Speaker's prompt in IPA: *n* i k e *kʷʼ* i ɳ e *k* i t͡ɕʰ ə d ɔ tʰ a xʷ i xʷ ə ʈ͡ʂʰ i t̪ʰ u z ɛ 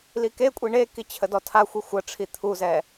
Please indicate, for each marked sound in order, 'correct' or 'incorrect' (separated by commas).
incorrect, correct, correct